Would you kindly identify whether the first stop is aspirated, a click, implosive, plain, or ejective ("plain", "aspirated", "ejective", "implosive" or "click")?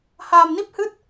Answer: plain